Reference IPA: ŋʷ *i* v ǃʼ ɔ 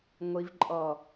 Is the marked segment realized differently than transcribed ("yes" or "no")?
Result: no